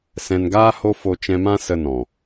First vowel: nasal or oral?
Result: nasal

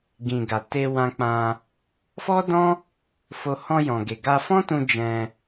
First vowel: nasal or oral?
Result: nasal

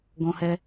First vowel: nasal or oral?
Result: nasal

